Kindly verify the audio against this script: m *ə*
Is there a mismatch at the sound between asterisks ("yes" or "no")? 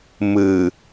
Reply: yes